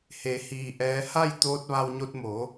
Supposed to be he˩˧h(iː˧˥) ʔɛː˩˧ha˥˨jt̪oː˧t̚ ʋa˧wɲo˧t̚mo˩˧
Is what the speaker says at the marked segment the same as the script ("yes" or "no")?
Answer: no